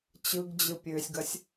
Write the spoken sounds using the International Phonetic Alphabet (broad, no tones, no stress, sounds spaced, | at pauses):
t͡ɕ ɯ ɡ d͡ʑ ɯ pʲ ø sʲ ɡ ɐ sʲ